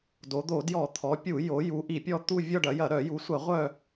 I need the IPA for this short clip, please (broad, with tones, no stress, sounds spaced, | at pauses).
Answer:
d o˩˧ d̪ o˧˩˧ d j ɔ˧˩˧ t̪ʰ ɔ˩˧ pʲ u˧˩˧ j o˩˧ j u˩˧ ʔ i˧˩˧ pʲ ɔ˦˨ t̪ u˦˨ vʲ ɔ˦˨ ɖ ɐ˩˧ j ɐ˧˩˧ ɾ œ˧˩˧ j u˩˧ sʷ ɐ˧˩˧ ʁʷ œ˦˨